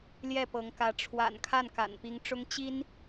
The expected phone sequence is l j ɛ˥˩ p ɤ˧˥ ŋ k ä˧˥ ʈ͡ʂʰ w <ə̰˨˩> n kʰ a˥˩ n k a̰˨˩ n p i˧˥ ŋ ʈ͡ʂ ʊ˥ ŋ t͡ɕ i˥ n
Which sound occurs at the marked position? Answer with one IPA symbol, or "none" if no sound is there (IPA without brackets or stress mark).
a̰˨˩